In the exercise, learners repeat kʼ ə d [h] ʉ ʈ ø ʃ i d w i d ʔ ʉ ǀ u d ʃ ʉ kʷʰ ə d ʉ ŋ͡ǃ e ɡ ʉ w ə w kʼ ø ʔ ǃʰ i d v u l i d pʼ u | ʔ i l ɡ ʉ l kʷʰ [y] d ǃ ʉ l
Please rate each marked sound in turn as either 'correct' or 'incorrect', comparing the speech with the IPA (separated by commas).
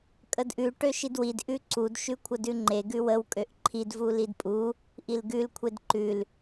incorrect, incorrect